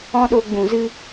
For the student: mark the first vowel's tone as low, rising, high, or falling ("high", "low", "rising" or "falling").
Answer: high